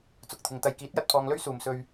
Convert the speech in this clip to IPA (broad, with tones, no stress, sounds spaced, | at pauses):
t͡s ʊ˨ k̚ t̪ʰ ɪ˨ ŋ t̪ ɐ˨ j k iː˨˥ t̚ j ɐ˨ t̚ pʰ ɔː˧ ŋ l ɵ˥ ɥ s uː˨ m s ɵ˧ ɥ